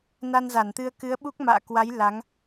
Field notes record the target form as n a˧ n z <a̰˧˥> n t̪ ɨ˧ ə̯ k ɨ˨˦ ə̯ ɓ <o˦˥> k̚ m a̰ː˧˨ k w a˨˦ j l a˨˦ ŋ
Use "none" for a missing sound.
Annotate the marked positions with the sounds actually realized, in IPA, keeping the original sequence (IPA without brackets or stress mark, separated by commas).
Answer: a˧˩, u˦˥